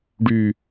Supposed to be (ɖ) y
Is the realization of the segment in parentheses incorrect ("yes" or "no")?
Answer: no